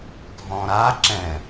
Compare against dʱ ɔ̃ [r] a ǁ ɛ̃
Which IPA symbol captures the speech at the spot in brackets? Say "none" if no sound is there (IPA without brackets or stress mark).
ɾ